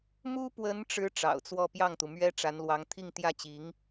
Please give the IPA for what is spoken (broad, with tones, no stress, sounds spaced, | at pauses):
m u˥ p w ə˧˥ n ʈ͡ʂ ɻ̩˧˥ ʈ͡ʂ ɑ̰˨˩ ʊ̯ t͡s w ɔ˥˧ p j ɑ˥˩ ŋ t̪ u˩ m ɥ ɛ˥ ʈ͡ʂ a˧˥ n l w ɑ˧˥ ŋ t̪ʰ i˥˧ ŋ t̪ j ä˥˩ t͡ɕ i˧˥ ŋ